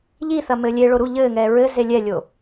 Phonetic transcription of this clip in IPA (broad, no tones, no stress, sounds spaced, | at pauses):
ʎ i θ ɐ m ɘː lʲ e ɭ o ɾ u ʎ ɘː ŋ ɛː ɹ ɘ z e lʲ ɛ lʲ o